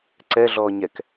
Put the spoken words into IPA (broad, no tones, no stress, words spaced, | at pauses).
ǀɛɮɔː ɲɛk